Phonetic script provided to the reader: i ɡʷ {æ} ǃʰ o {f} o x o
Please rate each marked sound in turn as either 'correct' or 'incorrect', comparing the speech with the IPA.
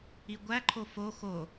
correct, correct

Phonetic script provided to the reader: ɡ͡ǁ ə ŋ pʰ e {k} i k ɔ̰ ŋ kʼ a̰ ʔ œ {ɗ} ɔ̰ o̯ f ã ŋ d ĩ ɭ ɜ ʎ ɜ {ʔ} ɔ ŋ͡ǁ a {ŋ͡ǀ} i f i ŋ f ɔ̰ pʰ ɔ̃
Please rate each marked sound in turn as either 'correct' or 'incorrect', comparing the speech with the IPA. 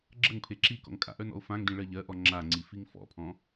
incorrect: ǁ, incorrect: n, correct, correct

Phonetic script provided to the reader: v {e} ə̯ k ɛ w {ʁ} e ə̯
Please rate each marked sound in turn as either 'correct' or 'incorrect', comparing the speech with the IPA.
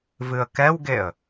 incorrect: ɨ, incorrect: ɡ

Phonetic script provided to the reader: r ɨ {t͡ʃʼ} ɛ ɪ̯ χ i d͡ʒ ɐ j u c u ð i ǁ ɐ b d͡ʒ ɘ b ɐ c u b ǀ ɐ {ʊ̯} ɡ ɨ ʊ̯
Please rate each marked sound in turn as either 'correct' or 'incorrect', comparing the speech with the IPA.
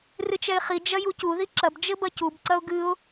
incorrect: t͡ʃ, correct

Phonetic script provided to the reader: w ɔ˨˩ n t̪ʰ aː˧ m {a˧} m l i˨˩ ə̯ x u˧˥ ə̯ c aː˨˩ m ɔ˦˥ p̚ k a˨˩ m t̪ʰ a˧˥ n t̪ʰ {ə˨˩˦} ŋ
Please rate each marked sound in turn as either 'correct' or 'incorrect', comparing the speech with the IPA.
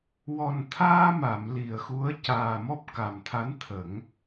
incorrect: a˨˩˨, correct

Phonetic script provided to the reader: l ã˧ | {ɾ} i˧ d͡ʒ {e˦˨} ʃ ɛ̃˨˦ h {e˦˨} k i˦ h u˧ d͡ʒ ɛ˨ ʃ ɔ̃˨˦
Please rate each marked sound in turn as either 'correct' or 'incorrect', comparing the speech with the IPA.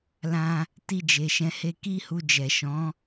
incorrect: t, incorrect: e˨, incorrect: e˧

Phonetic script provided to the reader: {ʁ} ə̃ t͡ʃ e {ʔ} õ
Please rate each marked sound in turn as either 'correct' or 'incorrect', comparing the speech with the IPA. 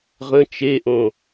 correct, correct

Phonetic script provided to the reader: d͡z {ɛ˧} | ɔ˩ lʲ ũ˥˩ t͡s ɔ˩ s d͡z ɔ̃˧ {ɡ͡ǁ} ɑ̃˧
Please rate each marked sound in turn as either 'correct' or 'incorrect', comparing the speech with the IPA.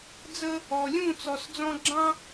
incorrect: ə˧, correct

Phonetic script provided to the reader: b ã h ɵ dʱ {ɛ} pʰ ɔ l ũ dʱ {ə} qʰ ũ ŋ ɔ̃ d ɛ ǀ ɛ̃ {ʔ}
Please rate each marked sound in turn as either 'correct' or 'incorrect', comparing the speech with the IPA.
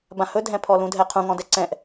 incorrect: ɛ̃, incorrect: ɛ, correct

